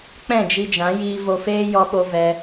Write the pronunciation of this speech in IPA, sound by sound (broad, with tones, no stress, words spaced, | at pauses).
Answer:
k͡pɛ̃˦˨d͡ʒi˧d͡ʒã˨˦ jiː˧vo˧feː˦ jɔ˧ɓo˧ vɛ˧